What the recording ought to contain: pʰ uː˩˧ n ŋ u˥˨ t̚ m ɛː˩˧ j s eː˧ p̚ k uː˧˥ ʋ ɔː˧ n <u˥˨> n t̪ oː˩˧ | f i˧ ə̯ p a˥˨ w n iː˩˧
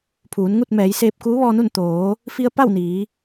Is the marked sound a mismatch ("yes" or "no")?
no